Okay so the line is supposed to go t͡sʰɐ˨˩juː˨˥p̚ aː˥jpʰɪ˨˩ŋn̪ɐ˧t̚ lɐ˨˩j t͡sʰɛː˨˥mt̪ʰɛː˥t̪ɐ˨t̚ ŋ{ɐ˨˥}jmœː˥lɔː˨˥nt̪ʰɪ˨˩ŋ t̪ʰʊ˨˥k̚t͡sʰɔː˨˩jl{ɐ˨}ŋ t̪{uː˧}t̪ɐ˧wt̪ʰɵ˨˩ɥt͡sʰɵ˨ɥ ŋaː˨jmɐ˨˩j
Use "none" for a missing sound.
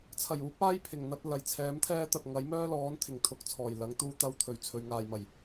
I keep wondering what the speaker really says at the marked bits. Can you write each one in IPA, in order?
ɐ˨˥, ɐ˨˥, uː˧

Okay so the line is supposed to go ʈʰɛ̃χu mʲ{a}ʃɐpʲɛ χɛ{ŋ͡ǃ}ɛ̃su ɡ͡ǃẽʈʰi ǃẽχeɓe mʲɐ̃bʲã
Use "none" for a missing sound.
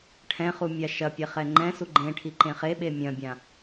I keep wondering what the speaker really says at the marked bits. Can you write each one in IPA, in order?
a, ŋ͡ǃ

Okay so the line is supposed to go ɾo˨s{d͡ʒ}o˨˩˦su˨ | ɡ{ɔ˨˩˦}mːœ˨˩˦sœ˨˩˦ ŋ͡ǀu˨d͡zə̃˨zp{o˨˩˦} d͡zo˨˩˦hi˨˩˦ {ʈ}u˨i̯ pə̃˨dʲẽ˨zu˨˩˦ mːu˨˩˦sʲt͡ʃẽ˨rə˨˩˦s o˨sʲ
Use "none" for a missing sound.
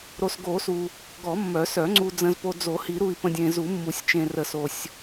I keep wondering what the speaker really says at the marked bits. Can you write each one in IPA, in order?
ɡ, ɔ˨˩˦, o˨, ɾ

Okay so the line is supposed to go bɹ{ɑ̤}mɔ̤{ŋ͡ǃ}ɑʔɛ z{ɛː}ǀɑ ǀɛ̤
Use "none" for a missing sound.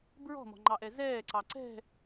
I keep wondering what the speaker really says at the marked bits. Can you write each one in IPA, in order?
ɔ̤, ŋ͡ǃ, ɛː

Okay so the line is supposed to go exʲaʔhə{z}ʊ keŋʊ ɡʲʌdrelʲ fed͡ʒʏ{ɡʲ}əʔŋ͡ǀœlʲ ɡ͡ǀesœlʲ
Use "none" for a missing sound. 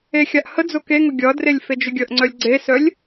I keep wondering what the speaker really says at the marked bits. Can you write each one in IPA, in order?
d͡z, ɡʲ

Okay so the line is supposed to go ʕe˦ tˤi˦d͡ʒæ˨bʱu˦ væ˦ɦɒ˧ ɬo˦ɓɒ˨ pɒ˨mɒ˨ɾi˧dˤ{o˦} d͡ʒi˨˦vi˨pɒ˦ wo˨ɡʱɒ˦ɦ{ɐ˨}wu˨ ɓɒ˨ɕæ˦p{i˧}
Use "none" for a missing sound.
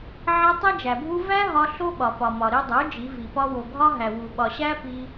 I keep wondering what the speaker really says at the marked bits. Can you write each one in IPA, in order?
o˨˦, æ˨, i˧

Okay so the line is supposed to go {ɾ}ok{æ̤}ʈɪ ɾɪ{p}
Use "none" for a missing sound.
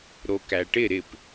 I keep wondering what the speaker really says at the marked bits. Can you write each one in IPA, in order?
ɾ, æ, p

